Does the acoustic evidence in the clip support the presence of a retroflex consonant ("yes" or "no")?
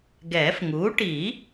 yes